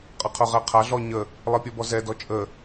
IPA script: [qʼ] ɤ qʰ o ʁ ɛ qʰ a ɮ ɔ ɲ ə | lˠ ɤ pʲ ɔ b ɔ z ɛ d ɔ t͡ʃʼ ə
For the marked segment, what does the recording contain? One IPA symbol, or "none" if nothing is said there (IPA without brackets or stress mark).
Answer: qʼ